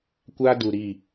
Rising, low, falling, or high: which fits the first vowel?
high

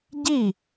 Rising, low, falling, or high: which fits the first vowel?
falling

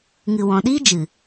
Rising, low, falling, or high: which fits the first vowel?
low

